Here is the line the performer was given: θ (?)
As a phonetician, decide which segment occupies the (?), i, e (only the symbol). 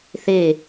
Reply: e